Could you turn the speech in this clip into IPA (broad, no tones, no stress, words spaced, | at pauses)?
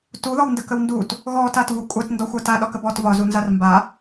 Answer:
tuðɔwndəkəw ndut | ɣɔtatvu kʷʼatndɔxʷa taɗɒkəb ɔt vɒzunzar mba